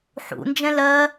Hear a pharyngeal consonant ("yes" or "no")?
yes